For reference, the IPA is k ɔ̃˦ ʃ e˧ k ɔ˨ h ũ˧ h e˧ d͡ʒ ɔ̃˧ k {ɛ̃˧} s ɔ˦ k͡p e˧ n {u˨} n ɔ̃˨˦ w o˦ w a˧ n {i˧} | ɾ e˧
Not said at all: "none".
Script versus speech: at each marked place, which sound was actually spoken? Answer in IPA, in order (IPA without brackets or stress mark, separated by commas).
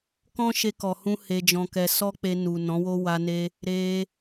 ɛ˧, u˨, e˧